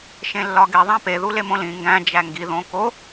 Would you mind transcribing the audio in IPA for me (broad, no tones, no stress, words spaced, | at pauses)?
ʃẽlːɒɡe ðˤæ̃pe ðulemõlĩ ŋɡæ̃ d͡ʒæŋɡi ðõko